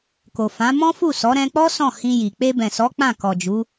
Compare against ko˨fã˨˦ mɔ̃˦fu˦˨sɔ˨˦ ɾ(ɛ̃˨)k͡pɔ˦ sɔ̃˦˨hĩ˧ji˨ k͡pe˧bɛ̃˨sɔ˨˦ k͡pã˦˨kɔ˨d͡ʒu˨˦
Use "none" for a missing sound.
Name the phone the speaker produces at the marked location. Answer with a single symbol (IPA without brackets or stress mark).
ɛ̃˧